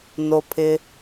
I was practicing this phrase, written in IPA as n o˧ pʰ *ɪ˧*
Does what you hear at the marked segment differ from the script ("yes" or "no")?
no